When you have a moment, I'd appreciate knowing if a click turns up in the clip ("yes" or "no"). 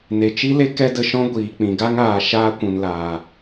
no